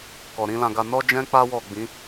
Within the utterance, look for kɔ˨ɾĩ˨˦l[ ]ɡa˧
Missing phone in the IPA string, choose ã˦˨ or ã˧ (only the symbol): ã˧